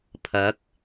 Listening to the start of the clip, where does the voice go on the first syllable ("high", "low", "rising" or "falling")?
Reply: rising